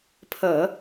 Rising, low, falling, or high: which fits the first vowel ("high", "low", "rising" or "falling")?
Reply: low